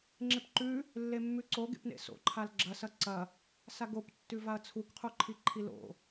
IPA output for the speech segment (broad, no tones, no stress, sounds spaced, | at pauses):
ŋ͡ǁ e p ǃ ʉ | lː e mː ʉ ǀ o ɡ ḛ p n ḛ s o̰ ǃʰ a l ɡ͡ǁ ɐ s ɐ ǀ ɐ | s a ɡ o p tː ʉ v a ɐ̯ t͡sʰ u k qʰ u ǃʰ i ǃʰ i l o̰